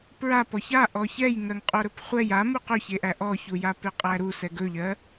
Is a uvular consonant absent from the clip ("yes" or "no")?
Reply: no